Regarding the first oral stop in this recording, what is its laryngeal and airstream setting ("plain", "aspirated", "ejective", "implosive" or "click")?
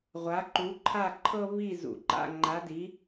click